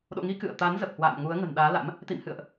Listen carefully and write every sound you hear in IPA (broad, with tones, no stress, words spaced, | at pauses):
ɗo̰˧˨ŋi˨˦ kɨ̰˧˨ə̯ t̪a˨˦nzə˨˩p̚hwa̰ː˧˨m ŋu˨˦ə̯ŋə̤˨˩nɗaː˨˦la̰˧˥m | t̪ḭ˧˨mhɨ̰˧˨ə̯ʔ